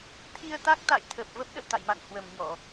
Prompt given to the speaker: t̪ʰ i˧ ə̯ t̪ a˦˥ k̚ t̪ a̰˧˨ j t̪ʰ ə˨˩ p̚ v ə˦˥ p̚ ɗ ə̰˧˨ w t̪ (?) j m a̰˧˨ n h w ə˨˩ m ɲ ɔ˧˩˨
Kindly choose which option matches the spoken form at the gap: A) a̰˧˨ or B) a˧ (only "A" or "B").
A